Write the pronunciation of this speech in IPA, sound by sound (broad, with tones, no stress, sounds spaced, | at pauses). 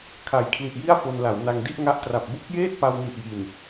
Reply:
kʰ a˨˩ j kʰ l i˨˩ ʔ j i˥˩ a̯ f o˧ n l a˩˦ w n a˧ ŋ d i˥˩ ʔ ŋ a˦˥ ʔ t r a˨˩ p̚ b u˦˥ k̚ j eː˥˩ t̚ p a˧ w n i˨˩ ʔ j i˨˩ n